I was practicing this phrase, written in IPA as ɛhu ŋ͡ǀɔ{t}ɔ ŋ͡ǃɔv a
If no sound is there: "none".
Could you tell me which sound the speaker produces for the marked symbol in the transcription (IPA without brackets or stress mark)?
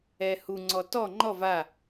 t